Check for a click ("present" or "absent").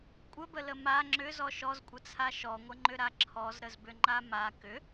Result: present